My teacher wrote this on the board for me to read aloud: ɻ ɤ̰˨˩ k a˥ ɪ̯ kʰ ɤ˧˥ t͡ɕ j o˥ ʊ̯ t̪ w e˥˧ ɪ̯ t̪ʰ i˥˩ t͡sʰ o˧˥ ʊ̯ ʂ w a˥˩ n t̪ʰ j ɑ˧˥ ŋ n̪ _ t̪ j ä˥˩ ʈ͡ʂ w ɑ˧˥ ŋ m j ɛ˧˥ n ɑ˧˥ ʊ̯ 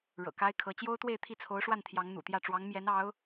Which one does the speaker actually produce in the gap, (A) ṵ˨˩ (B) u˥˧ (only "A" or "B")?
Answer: A